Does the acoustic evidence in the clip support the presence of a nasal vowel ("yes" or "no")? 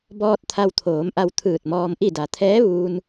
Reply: no